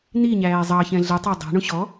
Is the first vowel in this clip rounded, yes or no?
no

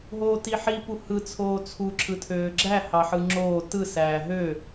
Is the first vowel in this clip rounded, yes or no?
yes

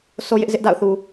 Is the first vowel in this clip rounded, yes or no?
yes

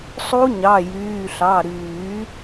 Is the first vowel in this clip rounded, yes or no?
yes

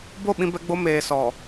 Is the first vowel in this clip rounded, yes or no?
yes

